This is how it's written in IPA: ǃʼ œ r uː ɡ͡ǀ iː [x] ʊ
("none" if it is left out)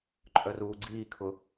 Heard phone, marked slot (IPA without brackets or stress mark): kʰ